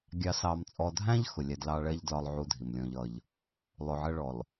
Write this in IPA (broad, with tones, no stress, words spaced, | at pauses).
ɡʲɑ˨sɑ˨mt͡sʼɔ˨dʱæ̃˦ʎ xʊ˨lʲæ˦dlɑ˦ ɭɛ˦ʎ dlɒ˨lˠʕu˨ dʱi˨mlʲɔ̃˦ʎʌ˦ʎ | lˠʊ˨ʕɜ˦ɭɔ˨l